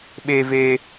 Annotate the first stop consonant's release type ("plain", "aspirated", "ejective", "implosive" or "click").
implosive